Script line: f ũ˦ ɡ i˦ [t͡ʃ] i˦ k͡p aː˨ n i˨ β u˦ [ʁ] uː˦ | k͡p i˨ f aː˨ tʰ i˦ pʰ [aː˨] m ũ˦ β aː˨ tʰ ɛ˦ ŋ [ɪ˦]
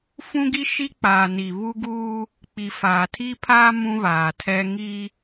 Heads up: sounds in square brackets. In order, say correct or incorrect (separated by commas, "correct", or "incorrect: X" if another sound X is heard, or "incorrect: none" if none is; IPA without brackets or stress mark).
incorrect: ʃ, incorrect: ɡ, incorrect: aː˦, incorrect: i˦